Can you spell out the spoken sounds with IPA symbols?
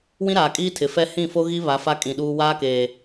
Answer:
w ĩ˦ ɾ aː˨ kʼ iː˦ tʰ ɪ˨ f ɛ˦ h ĩ˦˨ f o˦ ɣ i˦ β a˨˦ f a˦ kʼ ĩ˨ ɗ uː˦ w aː˦ k eː˨

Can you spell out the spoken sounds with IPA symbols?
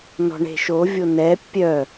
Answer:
n ɔ̤ ɳ e̤ ʃ o vʲ o n ɛ pʲ œ

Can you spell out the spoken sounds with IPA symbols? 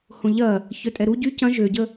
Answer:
h õ ʎ ɐ | ç œ tʼ ɛ ɾ u ɟ y c ɐ̃ ʒ ø ɟ ə

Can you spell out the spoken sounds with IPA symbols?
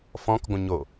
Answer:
f ɔ̃ k ɡʷ ə̃ ɲ o

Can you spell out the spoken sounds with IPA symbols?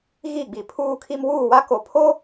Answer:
ɣ i˦˨ ɡ͡b i˨ pʰ uː˦ kʰ i˦ m w uː˦˨ w a˦ k o˨ pʰ o˦

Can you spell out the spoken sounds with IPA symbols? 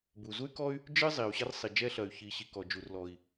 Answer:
b u˩ z u˥ y̯ k ɔ˥ y̯ | d͡ʒ ɨ˥ zˤ i˩ u̯ ɕ ɐ˥ r sˤ i˩ d͡ʒ ɛ˥ ɬ ɐ˩ y̯ ç i˩ ɕ i˩ k ɔ˩ d͡ʒ u˩ r l ɔ˩ i̯

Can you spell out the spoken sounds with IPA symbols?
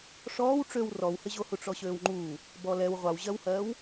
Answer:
ʂ ɔː w ʈ͡ʂ ø w r ɔ w h ɪ ʑ o h u ʈ͡ʂ ɔ ɕ øː w ŋ͡ǃ uː | b ɔ l ɛ w ʁʷ a w ʑ ɜ w h ɜː w

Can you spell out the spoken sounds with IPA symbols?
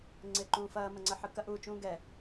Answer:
ŋ͡ǀ ɪː ǃ ũː f ɐː m ɐ ŋ͡ǀ ə ħ ɯ k ɐ ʔ uː t͡ʃ ũː ɡ ɛ

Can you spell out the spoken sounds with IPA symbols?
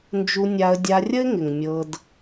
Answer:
n d͡ʒ u˧ nʲ a˧ ə̯ dʲ a˧ rʲ ə˦ ɪ̯ ŋ ɪ˨ ŋ mʲ ɤ˧ d

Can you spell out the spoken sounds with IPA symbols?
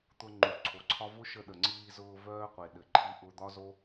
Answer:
t̪ ʊ˧ ŋ͡ǃ u˨ ǀʰ o˨ ǀʰ ɒ˦ v ʊ˦ ʃ ə˧ ɗ ə˨ ŋ͡ǀ iː˧ z ʊː˧ v œː˦ qʷ e˨ ɗ ɘ˨ ǃʰ i˧ ʔ ʊ˧ d̪ ɒ˦ z o˦

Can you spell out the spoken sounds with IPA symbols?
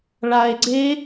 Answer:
ɭ a e̯ ɡ͡ǀ e

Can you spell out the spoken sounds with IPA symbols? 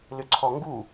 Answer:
l ʏ ǀʰ ɔ ŋ ɡ u

